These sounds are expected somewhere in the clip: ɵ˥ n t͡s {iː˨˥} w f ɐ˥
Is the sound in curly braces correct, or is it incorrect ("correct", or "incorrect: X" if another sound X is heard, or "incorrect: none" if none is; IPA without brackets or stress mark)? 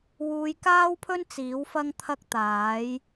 correct